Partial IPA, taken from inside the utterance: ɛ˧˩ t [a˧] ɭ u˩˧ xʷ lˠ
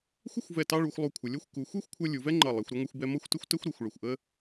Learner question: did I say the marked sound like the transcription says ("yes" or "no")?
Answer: no